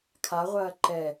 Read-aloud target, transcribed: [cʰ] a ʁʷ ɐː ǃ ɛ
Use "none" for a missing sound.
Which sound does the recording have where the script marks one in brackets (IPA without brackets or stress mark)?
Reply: kʰ